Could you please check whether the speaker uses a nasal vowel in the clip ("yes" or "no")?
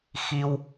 no